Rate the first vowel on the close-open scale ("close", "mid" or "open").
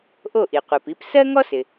mid